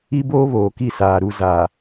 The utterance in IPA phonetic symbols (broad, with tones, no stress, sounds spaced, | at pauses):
i˦ b oː˦ β oː˨ k i˦˨ s aː˨ ɾ u˨ z aː˨